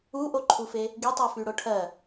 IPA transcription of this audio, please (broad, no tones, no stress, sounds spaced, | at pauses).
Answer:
u ʔ o ǃʰ u f e | ɡ i tˤ u f y ɽ o ʈʰ ɜ